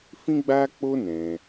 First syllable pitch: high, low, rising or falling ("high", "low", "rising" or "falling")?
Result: high